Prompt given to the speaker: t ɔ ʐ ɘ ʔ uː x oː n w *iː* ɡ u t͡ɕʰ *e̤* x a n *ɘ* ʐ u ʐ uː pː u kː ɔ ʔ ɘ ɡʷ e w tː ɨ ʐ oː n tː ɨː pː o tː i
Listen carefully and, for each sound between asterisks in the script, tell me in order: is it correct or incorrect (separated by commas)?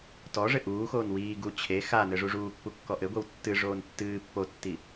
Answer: correct, incorrect, correct